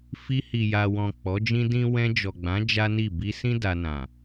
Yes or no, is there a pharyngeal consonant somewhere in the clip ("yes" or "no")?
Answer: no